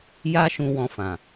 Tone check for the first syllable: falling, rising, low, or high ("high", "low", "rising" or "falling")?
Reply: high